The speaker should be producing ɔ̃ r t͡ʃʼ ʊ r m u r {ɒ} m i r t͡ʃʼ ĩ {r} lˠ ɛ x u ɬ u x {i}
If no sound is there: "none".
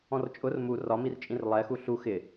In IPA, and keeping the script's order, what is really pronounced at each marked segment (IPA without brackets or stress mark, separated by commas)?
ɒ, r, ɪ